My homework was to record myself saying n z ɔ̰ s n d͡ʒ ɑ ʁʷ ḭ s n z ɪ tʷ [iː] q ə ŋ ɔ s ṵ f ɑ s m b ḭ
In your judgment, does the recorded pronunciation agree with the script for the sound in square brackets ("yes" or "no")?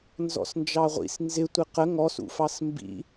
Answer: no